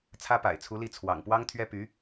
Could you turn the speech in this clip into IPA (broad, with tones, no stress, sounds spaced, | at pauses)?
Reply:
t͡sʰ ä˥ p a̰˨˩ ɪ̯ t͡sʰ u˧˥ l i˥˩ t͡sʰ w ɑ̰˨˩ ŋ p w ɑ˥ ŋ t̪ʰ ɥ ɛ˥ p y˧˥